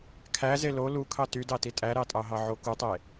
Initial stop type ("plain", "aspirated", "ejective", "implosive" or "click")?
aspirated